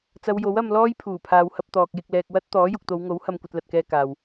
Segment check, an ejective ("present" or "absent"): absent